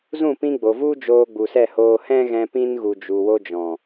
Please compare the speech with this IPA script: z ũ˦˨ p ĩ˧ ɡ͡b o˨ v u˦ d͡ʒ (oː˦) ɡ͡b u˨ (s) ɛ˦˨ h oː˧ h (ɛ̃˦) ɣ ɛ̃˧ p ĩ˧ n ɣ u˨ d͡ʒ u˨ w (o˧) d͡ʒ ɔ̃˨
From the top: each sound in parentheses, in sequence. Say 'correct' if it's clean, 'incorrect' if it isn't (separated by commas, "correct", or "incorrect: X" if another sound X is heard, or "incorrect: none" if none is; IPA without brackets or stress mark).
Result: incorrect: oː˧, correct, correct, correct